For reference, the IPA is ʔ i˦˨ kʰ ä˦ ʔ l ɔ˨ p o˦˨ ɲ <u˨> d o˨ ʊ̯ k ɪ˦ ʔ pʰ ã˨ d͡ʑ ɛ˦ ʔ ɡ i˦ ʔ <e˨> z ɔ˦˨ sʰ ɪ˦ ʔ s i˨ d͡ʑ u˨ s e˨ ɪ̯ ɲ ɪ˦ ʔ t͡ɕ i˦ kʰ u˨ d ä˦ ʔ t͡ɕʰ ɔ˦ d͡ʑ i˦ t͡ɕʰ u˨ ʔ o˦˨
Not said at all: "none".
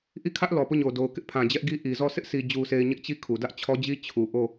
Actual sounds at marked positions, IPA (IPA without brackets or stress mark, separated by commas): o˨, i˨